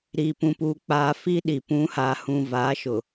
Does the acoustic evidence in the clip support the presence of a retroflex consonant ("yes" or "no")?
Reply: no